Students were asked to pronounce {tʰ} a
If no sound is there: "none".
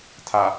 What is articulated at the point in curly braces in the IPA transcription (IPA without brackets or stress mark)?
tʰ